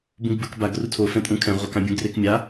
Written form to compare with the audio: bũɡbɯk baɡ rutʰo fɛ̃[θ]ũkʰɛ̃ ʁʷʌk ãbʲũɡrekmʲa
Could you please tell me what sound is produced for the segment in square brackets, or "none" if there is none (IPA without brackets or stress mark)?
tʼ